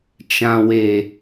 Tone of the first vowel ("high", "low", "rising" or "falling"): low